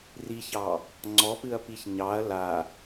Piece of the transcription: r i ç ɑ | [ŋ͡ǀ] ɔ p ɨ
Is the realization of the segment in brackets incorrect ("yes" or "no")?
no